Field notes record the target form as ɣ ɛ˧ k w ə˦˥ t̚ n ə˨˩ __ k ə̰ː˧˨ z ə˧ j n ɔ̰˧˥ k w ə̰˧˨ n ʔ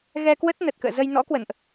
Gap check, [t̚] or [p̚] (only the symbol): t̚